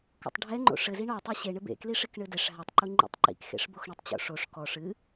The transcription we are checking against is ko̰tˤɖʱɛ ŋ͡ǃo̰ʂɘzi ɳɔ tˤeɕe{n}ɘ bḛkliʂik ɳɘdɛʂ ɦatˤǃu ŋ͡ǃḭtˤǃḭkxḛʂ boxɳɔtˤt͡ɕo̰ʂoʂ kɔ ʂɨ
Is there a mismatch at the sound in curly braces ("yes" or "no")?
yes